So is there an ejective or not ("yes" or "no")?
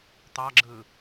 no